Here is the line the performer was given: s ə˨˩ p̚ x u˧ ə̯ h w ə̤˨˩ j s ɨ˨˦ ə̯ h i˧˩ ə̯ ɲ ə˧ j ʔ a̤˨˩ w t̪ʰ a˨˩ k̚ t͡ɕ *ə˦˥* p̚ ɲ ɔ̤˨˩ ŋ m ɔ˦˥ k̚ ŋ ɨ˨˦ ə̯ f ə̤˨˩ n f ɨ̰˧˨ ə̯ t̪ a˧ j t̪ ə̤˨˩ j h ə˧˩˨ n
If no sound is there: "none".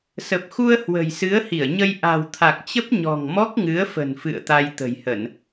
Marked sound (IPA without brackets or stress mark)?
ə˦˥